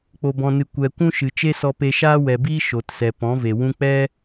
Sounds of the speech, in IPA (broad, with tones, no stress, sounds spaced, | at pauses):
k͡p o˨ b ɔ̃˨ n ɨ˨ kʷ ɛ˨ kʷ ũ˦ ʃ ɨ˨ t͡ʃ e˦ s ɔ˧ p e˧ ʃ aː˦ w ɛ˨ b iː˦ ʃ o˨ t s ɛ˨ p ɔ̃˨˦ v e˨ w ũ˦ k͡p ɛ˦